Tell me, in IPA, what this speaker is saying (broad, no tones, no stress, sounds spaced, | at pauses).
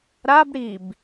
ɾ a b ɽ i b